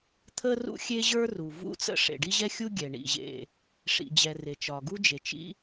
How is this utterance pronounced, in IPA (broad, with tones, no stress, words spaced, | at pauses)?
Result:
t̪ʰə˥ rṵ˥xʲe˥ʑə˞˥ ru˩vṵ˥t͡sə̰˥ ʂḛ˩ɖi˥ʑɛ˥xʲu˥ ɡʲɛ˩ ɳḭ˩ ʑḛ˩ | ʂḭ˩d͡ʑɛ˩ re˩t͡ʃɒ˩ɡu˥d͡ʒe˩ t͡ʃḭ˥